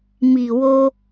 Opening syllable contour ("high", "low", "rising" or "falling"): low